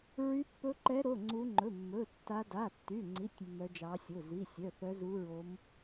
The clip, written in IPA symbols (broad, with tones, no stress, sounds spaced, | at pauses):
ɹ y˦˥ pː ɵ˦˥ ǃ ɛ˦˥ ɾ o˧˥˧ ŋ͡ǀ u˦˥ ŋ͡ǃ ɵ˧˥˧ mː ɵ˧˥˧ tː a˦˥ d a˧˥˧ tː y˧˥˧ ŋ͡ǀ i˧˥˧ tʲ mː œ˦˥ d͡ʒ ɑ˦˥ sʲ o˧˥˧ z i˧˥˧ sʲ œ˧˥˧ θ œ˦˥ z u˦˥ ɹ o˦˥ m